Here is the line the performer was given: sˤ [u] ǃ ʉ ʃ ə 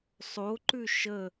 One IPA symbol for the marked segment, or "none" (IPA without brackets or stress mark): o